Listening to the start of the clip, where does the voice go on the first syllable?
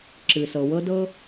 low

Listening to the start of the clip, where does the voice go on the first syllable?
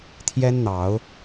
high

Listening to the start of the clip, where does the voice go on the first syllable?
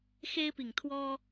high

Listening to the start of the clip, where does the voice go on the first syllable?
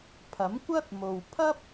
rising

